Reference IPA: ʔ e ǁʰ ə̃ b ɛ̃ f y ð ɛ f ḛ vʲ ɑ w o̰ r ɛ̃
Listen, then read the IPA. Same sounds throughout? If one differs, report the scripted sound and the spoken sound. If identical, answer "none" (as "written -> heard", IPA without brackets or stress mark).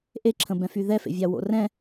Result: none